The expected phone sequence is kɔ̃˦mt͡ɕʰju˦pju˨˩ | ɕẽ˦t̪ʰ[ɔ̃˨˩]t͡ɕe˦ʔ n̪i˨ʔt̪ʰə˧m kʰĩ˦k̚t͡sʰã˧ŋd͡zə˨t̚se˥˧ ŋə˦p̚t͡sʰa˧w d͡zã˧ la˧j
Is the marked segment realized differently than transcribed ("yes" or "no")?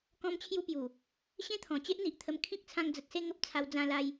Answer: no